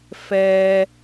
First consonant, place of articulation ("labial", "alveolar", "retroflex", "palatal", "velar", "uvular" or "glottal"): labial